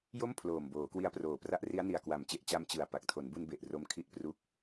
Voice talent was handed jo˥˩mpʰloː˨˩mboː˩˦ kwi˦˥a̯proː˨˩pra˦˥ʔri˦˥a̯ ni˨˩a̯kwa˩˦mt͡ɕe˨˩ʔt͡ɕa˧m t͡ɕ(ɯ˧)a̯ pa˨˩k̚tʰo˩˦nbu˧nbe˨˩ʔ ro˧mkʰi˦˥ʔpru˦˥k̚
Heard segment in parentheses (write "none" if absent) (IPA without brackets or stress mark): ɯ˨˩